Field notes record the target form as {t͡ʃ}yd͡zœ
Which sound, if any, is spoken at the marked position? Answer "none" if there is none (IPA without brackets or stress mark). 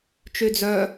t͡ʃ